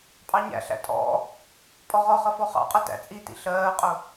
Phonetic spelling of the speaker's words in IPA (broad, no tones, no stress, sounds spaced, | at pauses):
pʼ ɑ ɲ æ̰ ɬ æ̰ tʼ ɔ̰ | pʼ ɔ ʁ ɔ χ ʌ f ɔ χ ɑ̰ qʼ ʌ t æ̰ t͡sʼ i t ḭ ɬ ɜː qʼ ʊ